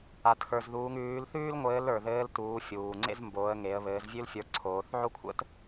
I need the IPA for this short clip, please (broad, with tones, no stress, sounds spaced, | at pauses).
a˩ t x ə˞˩ z ð uː˩˧ ŋ ʉː˩˧ l θ ʉː˥ l ŋʷ ɘː˧˥ l ə˞˩ ð ɘː˧˥ l t uː˩˧ fʲ uː˩ ŋ͡ǀ ḛ˥ z m b oː˩˧ ə̯ ŋ e˩˧ ə̯ β ɘː˩˧ z vʲ ʉ˥ l fʲ ə˞˧ ǀʰ oː˩˧ θ ʕ o˥ kʷʰ ə̰˥ t